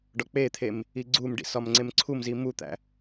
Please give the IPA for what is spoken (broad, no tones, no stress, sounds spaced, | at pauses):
ɖ ɒ k͡p e t̪ʰ e m | i ɡ͡ǀ u m ɖ ḭ s ɒ m ŋ͡ǀ e m ǀʰ u m z i m u t̪ æ̰